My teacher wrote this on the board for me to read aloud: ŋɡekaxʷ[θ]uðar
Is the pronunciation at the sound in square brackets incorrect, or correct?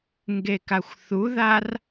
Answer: correct